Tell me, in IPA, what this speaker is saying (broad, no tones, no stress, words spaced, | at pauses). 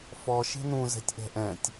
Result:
fɔʃe̤ nũzɛ̤tʲʔɛ̤ ʔɛ̃tʲ